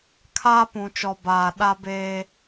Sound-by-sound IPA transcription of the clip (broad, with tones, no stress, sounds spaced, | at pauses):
kʰ aː˦ p ũ˨ t͡ʃ ɔ˨ b aː˨ ɗ a˦ b eː˦